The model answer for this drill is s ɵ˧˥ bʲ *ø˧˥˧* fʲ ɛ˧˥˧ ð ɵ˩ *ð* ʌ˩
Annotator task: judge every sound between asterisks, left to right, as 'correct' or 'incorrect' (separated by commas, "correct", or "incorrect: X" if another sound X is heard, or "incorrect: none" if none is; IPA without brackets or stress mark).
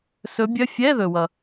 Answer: incorrect: œ˧˥˧, incorrect: w